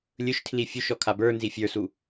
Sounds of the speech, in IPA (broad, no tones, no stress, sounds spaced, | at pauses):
lʲ ɵ ʃ tʰ l i fʲ u ʃ ɔ kʰ a b ə˞ n z i fʲ ə˞ s u